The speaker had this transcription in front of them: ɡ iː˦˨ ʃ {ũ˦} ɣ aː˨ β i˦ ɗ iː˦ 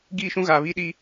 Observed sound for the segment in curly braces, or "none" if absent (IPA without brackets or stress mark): ũ˦